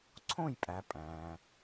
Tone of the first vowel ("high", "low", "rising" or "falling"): falling